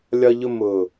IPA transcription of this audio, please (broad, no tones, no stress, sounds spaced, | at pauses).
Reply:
lʲ ɒ ʎ ʊ m ʊ